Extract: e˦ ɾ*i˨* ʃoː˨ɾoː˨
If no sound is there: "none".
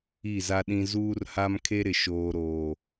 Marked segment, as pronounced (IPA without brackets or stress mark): ɪ˨